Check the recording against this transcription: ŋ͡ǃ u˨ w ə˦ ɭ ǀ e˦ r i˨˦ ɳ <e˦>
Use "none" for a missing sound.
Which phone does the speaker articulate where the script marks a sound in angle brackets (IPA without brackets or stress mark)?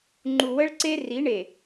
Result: e˨